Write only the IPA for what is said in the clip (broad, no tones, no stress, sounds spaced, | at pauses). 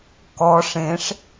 k ɔ ʂ ẽ ʂ